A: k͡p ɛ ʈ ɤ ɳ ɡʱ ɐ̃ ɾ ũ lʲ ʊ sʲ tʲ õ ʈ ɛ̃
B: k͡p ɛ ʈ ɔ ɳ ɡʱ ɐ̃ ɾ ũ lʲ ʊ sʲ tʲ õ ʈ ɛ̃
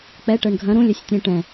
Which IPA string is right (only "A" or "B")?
A